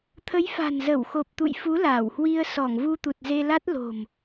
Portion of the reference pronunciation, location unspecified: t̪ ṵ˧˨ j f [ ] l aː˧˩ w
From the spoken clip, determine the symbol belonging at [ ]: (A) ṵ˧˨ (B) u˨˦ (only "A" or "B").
B